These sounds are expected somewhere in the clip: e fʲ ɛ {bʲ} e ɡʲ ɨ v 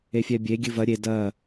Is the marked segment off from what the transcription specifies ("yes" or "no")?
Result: no